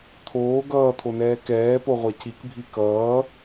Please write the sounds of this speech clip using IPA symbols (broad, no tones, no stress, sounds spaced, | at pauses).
t̪ʰ oː ɡ ʌː t̪ʰ o n ɛː k ɛː p o ʁʷ a c i k bʱ i k ʌː